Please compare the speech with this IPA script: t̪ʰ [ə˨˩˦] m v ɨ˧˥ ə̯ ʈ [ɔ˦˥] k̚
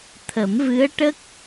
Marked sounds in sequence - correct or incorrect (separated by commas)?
correct, incorrect